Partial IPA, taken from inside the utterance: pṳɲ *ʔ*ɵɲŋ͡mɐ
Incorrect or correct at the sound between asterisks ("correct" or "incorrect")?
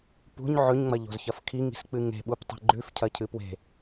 incorrect